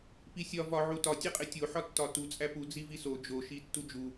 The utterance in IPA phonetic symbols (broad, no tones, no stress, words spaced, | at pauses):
pisʲɒ vɒʕu tɒ tʲeqʼetʲoħɒ tːɒtu t͡sʼæpu d͡ziviso d͡ʒoʃi tːud͡ʒu